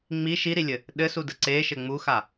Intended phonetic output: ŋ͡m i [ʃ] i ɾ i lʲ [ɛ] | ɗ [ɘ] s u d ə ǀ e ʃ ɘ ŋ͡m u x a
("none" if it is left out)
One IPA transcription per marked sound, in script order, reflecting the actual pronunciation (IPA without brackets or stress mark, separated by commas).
ʃ, ɘ, ɘ